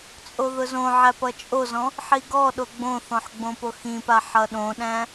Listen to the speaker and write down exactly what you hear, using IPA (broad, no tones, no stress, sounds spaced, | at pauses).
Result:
t͡sʼ o ð ʊ z õ ʕ æ p ʌ t͡ʃʼ o z ɔ̃ | ħ i ɡ ɔ ɗ o ɡ͡b õ θ ɔ̃ ħ ɡ͡b õ p o x ĩ p a ħ ʌ ɗ õ ɗ æ̃